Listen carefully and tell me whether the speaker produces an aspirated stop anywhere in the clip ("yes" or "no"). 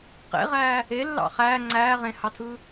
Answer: yes